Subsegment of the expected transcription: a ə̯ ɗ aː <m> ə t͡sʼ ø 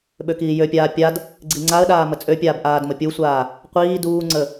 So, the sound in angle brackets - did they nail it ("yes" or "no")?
yes